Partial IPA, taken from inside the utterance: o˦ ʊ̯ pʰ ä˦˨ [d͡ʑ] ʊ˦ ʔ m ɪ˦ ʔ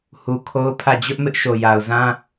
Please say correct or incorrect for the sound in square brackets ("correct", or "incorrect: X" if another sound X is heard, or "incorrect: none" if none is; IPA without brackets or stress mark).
correct